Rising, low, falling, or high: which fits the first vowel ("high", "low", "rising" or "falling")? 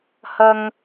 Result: high